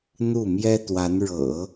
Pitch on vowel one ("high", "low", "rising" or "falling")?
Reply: falling